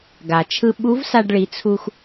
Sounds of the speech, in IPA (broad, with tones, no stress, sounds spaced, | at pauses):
ɡ a˩ t͡ʃʰ ɯ˧ ɓ u˧˥ v s a˧ ɖ ɭ i˩˧ t͡sʰ u˧ x